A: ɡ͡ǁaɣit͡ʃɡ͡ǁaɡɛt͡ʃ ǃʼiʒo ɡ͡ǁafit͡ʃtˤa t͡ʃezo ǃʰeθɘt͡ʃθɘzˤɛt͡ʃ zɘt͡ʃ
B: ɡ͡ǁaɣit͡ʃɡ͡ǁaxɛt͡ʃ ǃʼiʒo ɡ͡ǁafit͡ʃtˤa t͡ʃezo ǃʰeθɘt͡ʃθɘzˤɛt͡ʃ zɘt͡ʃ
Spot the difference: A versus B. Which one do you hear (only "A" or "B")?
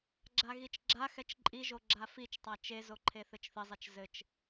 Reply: B